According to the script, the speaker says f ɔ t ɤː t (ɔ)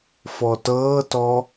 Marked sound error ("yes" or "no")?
no